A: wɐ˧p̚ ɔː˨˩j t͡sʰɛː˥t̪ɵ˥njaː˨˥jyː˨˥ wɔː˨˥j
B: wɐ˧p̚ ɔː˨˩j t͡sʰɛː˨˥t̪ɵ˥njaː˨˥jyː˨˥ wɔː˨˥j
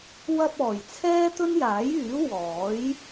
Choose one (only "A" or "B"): A